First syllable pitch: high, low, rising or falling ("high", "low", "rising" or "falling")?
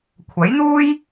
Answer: rising